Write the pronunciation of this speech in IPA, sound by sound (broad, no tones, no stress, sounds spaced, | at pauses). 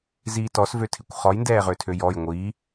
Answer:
z iː t ɔ s v ø tʰ ɪ kʷ χ ɔ j n d ɛː ʁ ø tʰ ø j ɔ j ŋʷ i